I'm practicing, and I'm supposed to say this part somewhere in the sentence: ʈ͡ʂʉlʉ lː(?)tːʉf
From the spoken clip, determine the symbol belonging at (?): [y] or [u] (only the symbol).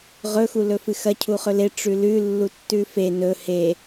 u